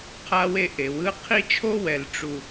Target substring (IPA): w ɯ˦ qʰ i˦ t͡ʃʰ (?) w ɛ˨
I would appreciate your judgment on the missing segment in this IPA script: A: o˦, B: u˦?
A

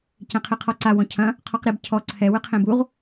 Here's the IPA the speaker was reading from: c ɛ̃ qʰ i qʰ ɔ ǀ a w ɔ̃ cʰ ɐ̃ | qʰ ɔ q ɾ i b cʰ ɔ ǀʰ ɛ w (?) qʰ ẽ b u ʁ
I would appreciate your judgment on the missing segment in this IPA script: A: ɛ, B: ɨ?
B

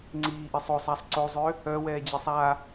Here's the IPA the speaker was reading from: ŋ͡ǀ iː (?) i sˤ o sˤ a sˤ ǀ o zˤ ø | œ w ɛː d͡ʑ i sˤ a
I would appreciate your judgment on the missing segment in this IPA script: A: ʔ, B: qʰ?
A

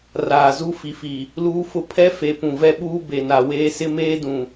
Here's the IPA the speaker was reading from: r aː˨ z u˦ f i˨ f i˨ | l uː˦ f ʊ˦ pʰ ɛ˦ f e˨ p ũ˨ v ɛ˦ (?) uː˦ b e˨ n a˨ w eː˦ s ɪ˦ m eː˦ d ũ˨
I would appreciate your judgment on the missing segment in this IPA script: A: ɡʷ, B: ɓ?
B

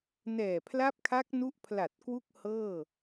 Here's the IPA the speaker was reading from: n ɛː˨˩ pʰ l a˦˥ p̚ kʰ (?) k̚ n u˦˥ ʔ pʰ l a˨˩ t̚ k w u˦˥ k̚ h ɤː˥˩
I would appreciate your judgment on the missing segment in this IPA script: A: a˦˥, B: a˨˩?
A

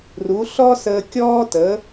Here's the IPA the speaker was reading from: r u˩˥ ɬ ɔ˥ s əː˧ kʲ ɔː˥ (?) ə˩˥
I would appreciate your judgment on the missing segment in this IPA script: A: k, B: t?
B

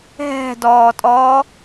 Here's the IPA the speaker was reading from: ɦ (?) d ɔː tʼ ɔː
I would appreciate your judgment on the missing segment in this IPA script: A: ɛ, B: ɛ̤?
B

